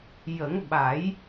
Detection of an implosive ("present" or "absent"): present